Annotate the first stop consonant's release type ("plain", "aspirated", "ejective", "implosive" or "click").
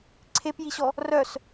click